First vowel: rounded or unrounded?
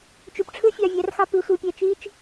rounded